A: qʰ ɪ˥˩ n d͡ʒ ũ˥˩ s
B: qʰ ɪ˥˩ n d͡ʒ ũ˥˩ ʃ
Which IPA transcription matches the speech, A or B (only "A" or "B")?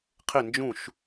B